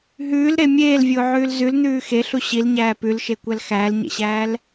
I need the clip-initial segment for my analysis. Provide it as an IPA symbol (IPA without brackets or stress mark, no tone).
ɦ